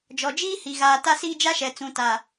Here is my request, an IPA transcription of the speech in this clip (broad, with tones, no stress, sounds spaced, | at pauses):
d͡ʒ ɔ˨ d͡ʒ iː˦ h i˨ ɣ aː˨ t a˦ s iː˦ d͡ʒ a˦ ʃ ɛ˨ t͡s ũ˨ t a˨